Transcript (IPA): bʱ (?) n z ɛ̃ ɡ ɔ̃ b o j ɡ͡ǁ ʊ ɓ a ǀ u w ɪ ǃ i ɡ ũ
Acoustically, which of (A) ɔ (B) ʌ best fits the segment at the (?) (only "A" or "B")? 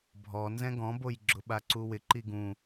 A